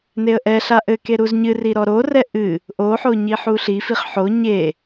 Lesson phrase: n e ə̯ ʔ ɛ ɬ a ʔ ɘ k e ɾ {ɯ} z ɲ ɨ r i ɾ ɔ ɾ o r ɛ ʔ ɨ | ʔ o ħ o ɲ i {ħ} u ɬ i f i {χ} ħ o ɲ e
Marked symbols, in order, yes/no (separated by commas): no, yes, yes